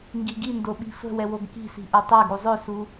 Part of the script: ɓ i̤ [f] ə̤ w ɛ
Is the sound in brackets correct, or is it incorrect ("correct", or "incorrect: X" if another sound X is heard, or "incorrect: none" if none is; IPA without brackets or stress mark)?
correct